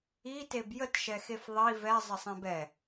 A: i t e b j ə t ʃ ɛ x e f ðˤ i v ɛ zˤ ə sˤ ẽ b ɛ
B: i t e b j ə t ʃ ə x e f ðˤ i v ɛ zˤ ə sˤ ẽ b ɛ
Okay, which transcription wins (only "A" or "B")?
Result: A